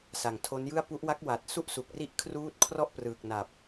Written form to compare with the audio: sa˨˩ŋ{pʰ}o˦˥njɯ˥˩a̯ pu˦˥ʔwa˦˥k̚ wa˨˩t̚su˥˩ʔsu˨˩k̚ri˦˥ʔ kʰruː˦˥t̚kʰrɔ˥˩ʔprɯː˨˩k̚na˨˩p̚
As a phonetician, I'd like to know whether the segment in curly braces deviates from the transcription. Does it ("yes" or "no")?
yes